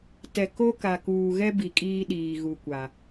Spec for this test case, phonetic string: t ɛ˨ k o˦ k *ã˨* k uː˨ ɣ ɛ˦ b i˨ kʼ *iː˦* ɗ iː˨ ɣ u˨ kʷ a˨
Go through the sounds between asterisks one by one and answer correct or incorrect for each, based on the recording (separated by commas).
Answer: incorrect, correct